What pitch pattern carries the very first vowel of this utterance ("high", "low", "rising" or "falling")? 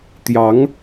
rising